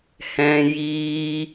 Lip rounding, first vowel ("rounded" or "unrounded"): unrounded